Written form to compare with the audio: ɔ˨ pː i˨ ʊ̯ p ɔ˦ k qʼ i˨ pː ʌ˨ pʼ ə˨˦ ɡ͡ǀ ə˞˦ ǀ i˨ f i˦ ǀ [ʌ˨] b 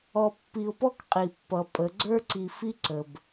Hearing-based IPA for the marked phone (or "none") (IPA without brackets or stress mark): ə˨